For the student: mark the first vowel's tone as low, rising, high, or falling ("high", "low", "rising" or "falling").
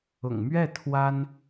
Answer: low